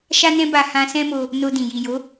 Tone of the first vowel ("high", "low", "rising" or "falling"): high